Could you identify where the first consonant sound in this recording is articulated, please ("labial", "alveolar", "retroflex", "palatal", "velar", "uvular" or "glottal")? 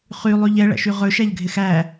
uvular